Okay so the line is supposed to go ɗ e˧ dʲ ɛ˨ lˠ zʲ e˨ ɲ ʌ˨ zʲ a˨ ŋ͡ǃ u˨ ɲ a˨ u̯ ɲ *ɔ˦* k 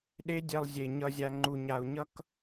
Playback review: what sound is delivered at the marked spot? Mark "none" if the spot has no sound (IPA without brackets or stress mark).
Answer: ʌ˦